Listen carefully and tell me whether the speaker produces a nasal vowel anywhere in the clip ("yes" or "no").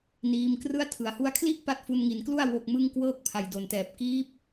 no